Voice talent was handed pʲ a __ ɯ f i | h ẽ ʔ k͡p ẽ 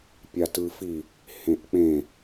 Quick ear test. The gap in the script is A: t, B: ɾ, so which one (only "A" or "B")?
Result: A